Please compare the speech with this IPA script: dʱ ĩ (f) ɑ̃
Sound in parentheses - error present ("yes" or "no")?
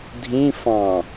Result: no